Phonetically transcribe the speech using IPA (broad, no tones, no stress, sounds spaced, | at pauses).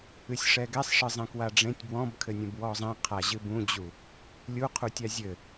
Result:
ɨ sʲ ʂ ɛ ɡ ɛ sˤ ʂ ɨ zˤ ẽ k w a ɖ͡ʐ ẽ tʲ b w ɔ̃ b kʰ ɘ nʲ ɛ̃ b w ɔ zˤ ẽ qʰ a ʑ ɨ b ũ d͡ʑ u | lʲ u qʰ u tʲ a zʲ ɘ